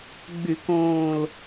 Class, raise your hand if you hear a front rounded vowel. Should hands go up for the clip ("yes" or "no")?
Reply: yes